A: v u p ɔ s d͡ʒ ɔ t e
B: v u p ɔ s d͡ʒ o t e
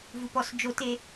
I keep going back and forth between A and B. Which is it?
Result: B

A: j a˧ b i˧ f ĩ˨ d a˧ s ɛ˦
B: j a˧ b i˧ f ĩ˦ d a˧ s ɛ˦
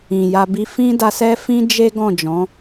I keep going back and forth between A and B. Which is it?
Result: B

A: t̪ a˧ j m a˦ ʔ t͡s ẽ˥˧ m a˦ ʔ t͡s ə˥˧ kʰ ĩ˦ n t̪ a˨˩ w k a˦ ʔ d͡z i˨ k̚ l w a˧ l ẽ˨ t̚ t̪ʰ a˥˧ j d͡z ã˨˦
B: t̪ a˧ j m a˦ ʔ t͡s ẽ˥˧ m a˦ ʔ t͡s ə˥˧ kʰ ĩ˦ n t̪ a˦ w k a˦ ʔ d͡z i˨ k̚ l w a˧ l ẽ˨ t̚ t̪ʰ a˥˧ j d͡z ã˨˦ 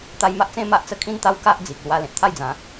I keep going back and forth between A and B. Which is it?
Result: B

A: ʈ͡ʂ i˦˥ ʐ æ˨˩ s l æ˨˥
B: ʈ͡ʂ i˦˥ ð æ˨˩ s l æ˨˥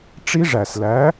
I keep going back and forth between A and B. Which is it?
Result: A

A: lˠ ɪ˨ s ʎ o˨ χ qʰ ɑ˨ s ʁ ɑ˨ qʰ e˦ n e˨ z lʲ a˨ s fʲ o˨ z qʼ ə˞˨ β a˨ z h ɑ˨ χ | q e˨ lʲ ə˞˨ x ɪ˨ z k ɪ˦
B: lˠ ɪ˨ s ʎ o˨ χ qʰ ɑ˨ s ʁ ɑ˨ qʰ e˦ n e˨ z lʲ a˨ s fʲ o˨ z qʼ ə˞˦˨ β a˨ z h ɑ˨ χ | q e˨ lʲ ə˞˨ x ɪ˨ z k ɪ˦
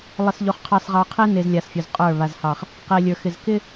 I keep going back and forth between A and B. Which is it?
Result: B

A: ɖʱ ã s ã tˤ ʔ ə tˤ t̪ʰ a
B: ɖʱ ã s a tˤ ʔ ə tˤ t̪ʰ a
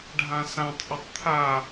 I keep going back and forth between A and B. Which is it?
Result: A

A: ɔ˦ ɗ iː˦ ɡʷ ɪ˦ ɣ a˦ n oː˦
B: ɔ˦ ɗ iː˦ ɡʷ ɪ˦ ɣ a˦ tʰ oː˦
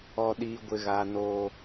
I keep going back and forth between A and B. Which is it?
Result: A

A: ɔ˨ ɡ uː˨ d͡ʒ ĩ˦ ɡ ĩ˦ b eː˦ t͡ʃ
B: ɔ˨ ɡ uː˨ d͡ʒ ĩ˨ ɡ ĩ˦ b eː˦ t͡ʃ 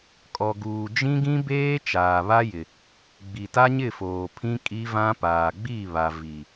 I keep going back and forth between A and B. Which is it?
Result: A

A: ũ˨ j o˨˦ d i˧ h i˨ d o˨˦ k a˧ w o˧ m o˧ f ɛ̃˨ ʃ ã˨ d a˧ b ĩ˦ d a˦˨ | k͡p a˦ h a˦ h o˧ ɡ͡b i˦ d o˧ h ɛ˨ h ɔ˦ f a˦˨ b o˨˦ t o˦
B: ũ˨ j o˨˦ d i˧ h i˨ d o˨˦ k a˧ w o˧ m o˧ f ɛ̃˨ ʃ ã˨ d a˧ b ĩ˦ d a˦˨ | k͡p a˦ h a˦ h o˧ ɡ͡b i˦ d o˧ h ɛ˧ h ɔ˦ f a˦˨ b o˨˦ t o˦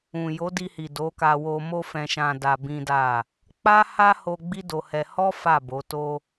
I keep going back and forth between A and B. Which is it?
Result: B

